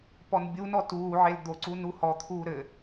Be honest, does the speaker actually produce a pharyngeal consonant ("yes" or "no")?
yes